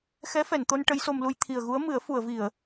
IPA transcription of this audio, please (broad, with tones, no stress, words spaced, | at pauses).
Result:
xɛ˧˥fɛ˨˩˨nt̪o˧n ʈə˧˥jso˧mlu˧j t̪ʰi˨˩ə̯ɣu˧˥ə̯mɨ˨˩˦ə̯ fu˨˩˨ə̯vi˨˩˨ə̯